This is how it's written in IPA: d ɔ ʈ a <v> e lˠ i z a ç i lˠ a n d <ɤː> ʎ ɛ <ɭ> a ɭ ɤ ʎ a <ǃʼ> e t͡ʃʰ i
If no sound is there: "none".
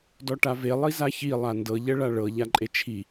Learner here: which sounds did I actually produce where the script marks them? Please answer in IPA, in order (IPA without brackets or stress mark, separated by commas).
v, ɤ, ɭ, ǃʼ